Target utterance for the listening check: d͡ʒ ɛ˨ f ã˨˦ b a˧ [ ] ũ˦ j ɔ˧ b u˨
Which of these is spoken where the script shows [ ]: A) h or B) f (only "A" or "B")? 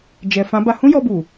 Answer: A